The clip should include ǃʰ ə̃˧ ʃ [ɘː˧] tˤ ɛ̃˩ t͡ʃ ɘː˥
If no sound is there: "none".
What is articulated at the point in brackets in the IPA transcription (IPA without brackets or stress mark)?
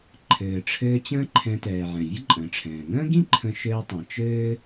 ɘː˧